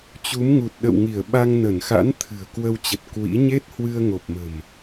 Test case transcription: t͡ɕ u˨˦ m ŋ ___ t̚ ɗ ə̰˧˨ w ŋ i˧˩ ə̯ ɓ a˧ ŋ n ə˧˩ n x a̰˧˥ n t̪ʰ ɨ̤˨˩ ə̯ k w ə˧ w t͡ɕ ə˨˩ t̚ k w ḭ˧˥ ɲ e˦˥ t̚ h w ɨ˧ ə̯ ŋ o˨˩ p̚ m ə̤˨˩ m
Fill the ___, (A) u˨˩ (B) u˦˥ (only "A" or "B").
A